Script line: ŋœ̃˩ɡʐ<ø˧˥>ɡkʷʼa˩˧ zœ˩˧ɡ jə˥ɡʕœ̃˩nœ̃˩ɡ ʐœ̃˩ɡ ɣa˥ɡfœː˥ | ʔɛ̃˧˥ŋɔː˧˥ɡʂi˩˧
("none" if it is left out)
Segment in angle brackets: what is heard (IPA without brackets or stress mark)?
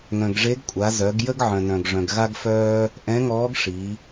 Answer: e˧˥